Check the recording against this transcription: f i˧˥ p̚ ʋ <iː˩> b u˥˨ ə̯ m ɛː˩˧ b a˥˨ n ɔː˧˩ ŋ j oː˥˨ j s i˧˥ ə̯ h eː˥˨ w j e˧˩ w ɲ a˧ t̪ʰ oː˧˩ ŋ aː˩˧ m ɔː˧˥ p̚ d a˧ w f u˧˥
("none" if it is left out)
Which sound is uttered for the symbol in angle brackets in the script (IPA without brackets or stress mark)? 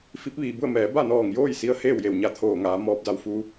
iː˩